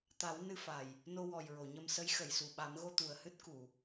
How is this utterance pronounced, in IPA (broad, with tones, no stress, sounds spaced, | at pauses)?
t̪ a˨˩˦ w n ɨ˧ f a˨˩ j | n o˧ w ɔ˨˩ j ɹ o˨˩˨ ɲ ə˧ m s ə˧˥ j x ə˨˩˨ j s u˨˩ ɓ a˨˩˦ m ɣ o˧ t̪ u˨˩ ə̯ h ɨ˦˥ t̚ k u˨˩˨